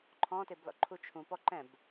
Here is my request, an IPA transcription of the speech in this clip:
ǃʰ ɔ̃ t e b l ɔ̰ ǃʰ u t͡ʃʰ ũ p ɔ ǃ ɛ̃ b

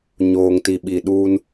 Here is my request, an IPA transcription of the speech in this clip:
ɲ oː˨ ŋ t i˨ ɓ i˨ ɗ uː˦ n

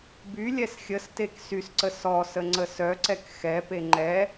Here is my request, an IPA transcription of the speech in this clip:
b y lʲ ɛ s xʲ ə s t e k s y s ǀ ə s ɔ s ə ŋ͡ǀ ə s œ ǀ ɛ k x ɛ p e ŋ͡ǃ ɛ

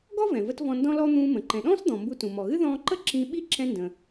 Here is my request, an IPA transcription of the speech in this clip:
ɡ ɔ˥ v ɛ̃˩ v ə˧ t v ɔ̃˧ n d ɔ̃˥ l ɔ˥ n̪ ũː˧ m ə̃˩ ǃ ɛ̃˩ ɗ ɔ̃ː˥ s d̪ ɔ̃˩ m b u˧ t ũ˩ m ɔ˩ ɣ ɨ˥ ð ɔ̃ː˧ ǃ ə˥ ǁ ĩ˧ ɓ i˥ ǁ ɛ̃˧ n d ə̃˩

